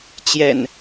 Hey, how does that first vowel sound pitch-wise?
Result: low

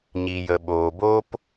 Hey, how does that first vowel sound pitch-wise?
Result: low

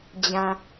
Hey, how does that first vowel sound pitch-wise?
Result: low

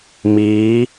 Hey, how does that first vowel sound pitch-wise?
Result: rising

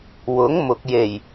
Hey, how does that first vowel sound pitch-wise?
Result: rising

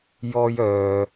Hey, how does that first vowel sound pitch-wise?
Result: high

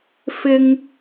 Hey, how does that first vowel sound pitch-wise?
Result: high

